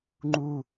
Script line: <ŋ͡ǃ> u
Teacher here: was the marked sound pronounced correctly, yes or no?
yes